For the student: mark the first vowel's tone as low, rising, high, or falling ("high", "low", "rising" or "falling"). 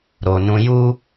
low